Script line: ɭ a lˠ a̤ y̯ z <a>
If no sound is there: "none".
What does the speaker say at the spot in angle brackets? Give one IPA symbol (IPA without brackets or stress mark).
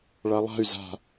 a̤